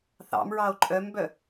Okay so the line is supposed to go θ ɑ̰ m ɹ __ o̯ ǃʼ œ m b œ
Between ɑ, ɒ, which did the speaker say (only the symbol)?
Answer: ɑ